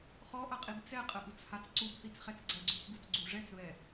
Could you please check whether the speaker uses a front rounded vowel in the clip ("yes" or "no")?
no